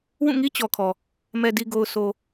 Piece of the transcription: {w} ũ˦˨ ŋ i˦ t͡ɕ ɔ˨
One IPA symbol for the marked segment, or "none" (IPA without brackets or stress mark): w